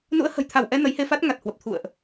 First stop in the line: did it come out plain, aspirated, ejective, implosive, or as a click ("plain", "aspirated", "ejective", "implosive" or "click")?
aspirated